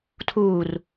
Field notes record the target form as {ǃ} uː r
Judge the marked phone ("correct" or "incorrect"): incorrect